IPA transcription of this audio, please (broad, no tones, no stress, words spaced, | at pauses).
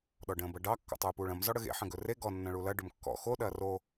ɗɔɖə̃ːbɐɖɑ kːɔ̰tˤuːpuːɭɐ̃m zɔɽəɣḛ ħə̃ɡɵre ɡɔ nːɐ̃ɭulɐ ɖɵmkːɔ̰ xo ɗɐːro